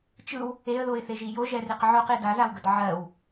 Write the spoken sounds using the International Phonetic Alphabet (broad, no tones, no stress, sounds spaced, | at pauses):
t͡ʃ ɯ w | e ə̯ ð o ɪ̯ θ e ʒ i j o ʒ ɛ r i q ʕ o q i d a z a w ɡ ə d ʕ ɜ w